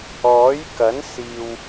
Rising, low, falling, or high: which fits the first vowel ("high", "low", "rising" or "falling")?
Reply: rising